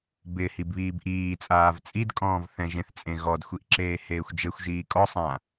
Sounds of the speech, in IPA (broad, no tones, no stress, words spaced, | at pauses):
bɪ hibβiːbʔiːt͡sʼaːv t͡sʼidkʼɔ̃ːv θɛ̃ʒẽθt͡sʼẽ ɣɔdxʷiʔ ǁeːheːxʷd͡ʒexʷʒiː kʼɔsˤã